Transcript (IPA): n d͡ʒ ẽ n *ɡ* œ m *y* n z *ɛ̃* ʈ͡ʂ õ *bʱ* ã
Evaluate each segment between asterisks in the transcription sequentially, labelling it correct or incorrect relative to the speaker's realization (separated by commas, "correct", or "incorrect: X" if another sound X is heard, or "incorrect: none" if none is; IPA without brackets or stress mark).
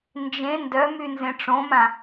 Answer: incorrect: d, correct, incorrect: ẽ, incorrect: m